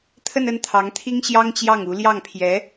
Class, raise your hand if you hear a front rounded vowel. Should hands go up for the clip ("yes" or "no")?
no